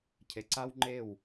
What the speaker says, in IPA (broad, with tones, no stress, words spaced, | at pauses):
cʰe˨ǀa˦w ŋ͡ǃe˦˨w